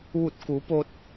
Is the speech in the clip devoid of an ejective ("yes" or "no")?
yes